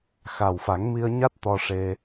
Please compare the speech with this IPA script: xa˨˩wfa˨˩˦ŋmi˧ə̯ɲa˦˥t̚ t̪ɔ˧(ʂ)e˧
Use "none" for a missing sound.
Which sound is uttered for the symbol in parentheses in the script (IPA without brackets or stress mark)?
ʂ